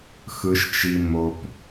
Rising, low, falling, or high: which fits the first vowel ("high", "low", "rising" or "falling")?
low